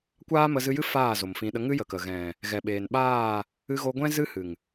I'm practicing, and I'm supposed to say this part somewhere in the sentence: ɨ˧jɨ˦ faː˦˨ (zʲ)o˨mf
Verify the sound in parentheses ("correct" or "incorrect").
incorrect